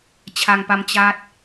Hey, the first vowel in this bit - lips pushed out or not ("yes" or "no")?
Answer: no